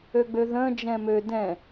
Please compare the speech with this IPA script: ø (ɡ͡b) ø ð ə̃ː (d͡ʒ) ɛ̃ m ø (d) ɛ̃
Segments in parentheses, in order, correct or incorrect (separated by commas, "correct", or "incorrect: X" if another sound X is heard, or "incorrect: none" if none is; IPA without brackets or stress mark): correct, correct, correct